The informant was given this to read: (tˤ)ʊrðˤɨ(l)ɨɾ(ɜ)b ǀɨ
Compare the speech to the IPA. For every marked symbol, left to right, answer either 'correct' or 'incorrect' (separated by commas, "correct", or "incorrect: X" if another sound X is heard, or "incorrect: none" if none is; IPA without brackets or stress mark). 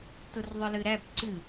incorrect: t, correct, incorrect: æ